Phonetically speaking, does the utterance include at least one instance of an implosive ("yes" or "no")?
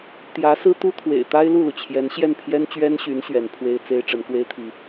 no